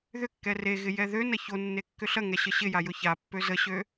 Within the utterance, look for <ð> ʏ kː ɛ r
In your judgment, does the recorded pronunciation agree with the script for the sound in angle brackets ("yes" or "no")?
yes